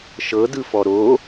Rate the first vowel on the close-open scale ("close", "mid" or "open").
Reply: mid